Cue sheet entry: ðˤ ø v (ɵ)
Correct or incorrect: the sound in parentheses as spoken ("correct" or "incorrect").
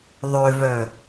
incorrect